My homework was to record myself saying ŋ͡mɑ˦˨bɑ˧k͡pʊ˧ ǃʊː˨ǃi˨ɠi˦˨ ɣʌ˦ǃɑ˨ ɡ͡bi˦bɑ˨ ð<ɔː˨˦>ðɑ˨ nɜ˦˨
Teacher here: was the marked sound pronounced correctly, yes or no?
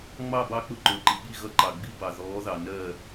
yes